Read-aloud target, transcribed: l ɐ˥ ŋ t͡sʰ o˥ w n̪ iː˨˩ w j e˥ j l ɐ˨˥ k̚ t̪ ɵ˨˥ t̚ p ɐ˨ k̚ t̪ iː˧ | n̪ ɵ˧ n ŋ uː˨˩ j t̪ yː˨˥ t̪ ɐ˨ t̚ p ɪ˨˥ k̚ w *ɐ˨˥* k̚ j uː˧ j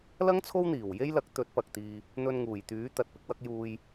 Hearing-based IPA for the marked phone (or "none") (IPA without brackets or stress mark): ɐ˨˥